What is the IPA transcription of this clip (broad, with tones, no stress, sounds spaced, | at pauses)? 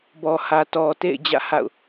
b ɔ˨ h ä˨ t ɔ˨ t ḛ˦˨ ɪ̯ d͡ʑ ä̰˦˨ h a̰˦˨ ʊ̯